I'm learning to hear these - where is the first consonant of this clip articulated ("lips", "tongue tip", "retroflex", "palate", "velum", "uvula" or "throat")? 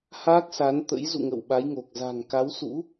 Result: throat